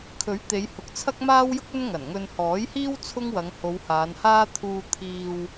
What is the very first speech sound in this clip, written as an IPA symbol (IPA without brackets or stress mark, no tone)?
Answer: kʰ